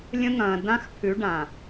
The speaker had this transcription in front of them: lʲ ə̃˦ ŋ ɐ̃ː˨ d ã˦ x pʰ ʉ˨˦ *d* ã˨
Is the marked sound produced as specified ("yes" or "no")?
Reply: no